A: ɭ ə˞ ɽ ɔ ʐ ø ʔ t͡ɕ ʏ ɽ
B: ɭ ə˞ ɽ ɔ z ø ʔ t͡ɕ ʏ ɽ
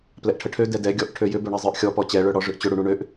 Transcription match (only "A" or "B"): A